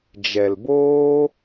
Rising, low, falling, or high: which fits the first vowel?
low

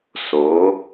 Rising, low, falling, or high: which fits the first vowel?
rising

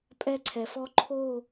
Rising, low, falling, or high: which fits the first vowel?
high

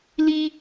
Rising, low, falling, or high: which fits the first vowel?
high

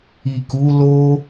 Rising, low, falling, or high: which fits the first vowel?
low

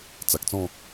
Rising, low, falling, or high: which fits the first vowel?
low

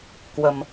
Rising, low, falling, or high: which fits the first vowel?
low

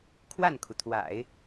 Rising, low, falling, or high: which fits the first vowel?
falling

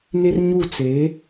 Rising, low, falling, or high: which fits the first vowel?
high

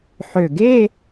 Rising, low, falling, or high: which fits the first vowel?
low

